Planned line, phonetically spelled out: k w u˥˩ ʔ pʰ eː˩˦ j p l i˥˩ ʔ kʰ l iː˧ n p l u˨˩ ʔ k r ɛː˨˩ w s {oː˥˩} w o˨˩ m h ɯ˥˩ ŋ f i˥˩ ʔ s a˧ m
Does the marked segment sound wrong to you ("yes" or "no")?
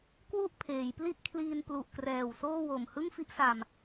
no